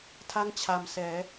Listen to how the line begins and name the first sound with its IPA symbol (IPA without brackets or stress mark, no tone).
tʰ